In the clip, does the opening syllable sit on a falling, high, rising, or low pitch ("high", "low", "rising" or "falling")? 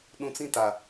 low